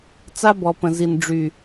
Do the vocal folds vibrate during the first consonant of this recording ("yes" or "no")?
no